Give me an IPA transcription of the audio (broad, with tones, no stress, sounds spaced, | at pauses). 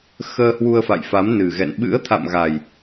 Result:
x əː˧ h w u˧ ə̯ f a̰˧˨ j f a˨˦ m n ɨ˨˩ ɣ ɛ̰˧˨ n ɓ ɨ̰˧˥ ə̯ t̪ʰ a̰˧˨ m ɣ a˨˩ j